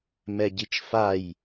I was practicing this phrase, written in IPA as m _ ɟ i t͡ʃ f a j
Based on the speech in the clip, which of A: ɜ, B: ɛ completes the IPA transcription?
B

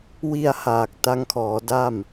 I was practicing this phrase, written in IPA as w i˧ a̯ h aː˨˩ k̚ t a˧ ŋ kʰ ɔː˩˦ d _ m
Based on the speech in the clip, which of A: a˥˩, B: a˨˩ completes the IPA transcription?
A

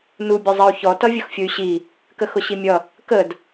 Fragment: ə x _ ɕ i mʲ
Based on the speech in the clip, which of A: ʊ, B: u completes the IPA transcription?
A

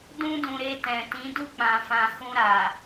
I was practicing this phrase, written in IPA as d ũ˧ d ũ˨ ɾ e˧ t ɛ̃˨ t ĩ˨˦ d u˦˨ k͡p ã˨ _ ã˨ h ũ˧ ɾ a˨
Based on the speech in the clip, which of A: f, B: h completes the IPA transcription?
A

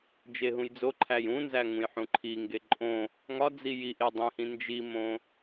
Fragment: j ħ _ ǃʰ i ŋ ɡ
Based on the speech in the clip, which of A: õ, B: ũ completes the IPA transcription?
B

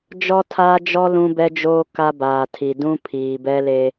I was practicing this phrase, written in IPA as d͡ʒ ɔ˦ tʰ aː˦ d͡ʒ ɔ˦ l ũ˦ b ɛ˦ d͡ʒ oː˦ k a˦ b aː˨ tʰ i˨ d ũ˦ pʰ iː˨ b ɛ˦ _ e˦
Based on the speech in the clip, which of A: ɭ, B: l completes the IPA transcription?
B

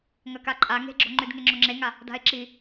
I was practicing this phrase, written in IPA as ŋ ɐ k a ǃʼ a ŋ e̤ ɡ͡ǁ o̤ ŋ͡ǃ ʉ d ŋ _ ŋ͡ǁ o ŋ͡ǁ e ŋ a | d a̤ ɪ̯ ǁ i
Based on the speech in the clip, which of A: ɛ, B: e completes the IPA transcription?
B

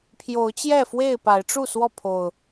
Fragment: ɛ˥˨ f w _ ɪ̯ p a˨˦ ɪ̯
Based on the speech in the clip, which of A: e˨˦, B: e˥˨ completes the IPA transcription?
B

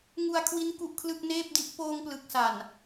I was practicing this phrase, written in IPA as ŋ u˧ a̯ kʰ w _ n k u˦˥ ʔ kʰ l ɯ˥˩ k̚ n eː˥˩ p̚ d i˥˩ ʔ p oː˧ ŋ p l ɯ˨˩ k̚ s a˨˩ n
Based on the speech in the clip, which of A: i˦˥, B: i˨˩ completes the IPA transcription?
A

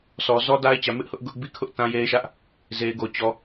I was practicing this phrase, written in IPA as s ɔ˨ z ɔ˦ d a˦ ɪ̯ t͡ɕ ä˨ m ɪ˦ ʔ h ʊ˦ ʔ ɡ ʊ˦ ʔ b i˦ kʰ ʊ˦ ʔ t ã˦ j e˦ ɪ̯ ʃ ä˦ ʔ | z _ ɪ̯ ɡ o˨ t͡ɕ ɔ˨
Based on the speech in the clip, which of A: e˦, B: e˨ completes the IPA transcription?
B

